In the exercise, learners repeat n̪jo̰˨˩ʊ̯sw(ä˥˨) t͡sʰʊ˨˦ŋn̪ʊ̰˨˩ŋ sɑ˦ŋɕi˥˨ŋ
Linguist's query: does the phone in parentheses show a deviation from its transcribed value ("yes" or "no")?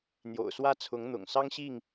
yes